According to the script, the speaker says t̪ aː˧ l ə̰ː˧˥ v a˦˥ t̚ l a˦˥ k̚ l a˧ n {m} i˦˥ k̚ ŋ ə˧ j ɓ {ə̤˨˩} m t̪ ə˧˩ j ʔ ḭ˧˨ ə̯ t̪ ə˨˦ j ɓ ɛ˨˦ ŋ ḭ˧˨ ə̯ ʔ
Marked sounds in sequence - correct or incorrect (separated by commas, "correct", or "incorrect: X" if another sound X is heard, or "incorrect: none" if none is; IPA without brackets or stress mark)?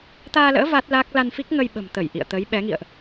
incorrect: f, correct